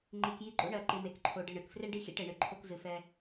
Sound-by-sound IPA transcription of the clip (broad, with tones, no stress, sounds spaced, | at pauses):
ŋ͡ǃ i˨ k j i˦ ɡ͡ǃ o̰˦ ɳ ɜ˨ ǃ ɪ˨ m e˨ k ǃʰ o˨ ɖ ɪ˦˨ ɳ ɨ˨ k f r e˦ ɳ ɖ i˦˨ x ḭ˦ ʈ e˨ ɳ ɨ˨ ǃʰ o˦ k z ɨ˨ f ɛ˦